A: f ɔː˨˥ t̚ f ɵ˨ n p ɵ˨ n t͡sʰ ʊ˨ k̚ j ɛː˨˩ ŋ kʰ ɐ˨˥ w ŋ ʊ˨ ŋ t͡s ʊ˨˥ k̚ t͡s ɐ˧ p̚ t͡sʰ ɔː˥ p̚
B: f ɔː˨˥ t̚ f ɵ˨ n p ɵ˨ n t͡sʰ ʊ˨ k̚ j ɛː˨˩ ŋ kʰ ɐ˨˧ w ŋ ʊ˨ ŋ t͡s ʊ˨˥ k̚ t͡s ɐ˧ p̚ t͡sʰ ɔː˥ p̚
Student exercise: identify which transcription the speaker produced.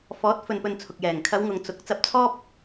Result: B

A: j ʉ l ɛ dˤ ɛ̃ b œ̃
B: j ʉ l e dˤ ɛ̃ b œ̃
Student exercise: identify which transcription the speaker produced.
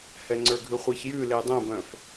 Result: B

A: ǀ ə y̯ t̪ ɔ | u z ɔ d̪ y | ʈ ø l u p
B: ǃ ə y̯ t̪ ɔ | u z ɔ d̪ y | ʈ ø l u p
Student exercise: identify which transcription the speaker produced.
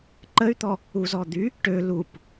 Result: B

